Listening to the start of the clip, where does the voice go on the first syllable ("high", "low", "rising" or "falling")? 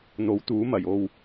rising